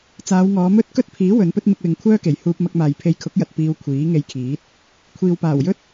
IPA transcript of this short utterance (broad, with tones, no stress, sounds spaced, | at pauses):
t͡s aː˨˧ w ŋ ɔː˨˧ m ɵ˥ t̚ k ɵ˥ t̚ pʰ iː˨˥ w ɵ˨˥ n p ɵ˥ t̚ m ɪ˧ k̚ w ɪ˨ ŋ kʷʰ œː˥ k e˨˩ j h uː˧ p̚ m ɐ˧ k̚ m aː˨ j pʰ e˧ j kʰ ʊ˨˥ k̚ j ɐ˨ t̚ p iː˧ w kʷʰ iː˨˥ ŋ e˧ j kʰ iː˨˥ t̚ | kʷʰ iː˨ w p aː˨˩ w j ɵ˥ t̚